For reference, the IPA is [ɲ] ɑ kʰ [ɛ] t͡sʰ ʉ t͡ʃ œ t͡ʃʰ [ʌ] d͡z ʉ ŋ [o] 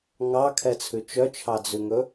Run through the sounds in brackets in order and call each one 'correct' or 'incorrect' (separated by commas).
incorrect, correct, incorrect, incorrect